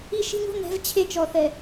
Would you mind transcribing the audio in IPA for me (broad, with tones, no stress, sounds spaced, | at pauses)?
i˦ ʃ i̤˦ ɲ o̤˦ n ɛ̤˨˦ v t͡ɕʰ e˦ t͡ʃ ɔ˨ θ ɛ˨